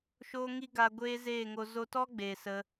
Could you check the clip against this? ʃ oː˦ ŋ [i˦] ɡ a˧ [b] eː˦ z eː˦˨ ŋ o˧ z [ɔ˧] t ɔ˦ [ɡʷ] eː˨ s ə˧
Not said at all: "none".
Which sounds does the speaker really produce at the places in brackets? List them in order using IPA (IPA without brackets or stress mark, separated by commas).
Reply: i˦, ɡʷ, o˧, ɡ͡b